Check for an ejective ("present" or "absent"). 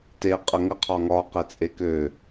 present